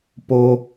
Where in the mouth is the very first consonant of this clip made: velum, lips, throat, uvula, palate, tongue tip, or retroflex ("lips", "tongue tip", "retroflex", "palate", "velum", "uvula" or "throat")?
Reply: lips